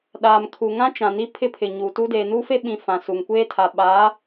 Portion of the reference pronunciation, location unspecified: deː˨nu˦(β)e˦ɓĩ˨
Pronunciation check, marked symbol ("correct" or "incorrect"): incorrect